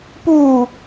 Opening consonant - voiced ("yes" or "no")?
no